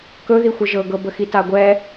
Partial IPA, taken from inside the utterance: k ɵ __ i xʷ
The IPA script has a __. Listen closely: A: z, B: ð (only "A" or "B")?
B